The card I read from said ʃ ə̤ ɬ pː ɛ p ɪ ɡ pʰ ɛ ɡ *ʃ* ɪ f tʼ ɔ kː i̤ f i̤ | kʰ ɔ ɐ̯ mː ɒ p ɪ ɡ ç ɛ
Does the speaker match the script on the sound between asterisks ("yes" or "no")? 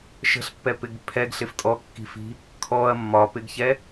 no